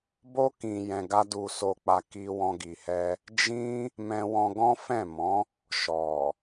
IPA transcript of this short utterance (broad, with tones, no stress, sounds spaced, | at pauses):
b o˦ k ĩ˧ j ɛ̃˧ ɡ a˦ d u˧ s o˧ k͡p a˧ k i˦ w ɔ̃˧ ɡ i˨ h ɛ˧ | d͡ʒ ĩ˦ | m ɛ̃˧ w ɔ̃˧ ɡ ɔ̃˦ f ɛ̃˦˨ m ɔ̃˨˦ | ʃ ɔ˨